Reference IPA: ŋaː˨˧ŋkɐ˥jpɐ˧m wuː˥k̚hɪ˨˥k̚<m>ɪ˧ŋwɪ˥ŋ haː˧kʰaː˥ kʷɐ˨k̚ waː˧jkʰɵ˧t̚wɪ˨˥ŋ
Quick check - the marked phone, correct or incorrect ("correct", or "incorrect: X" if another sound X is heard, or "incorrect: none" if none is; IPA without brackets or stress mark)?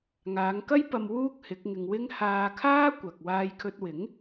incorrect: ŋ